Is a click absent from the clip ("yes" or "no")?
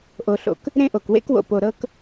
yes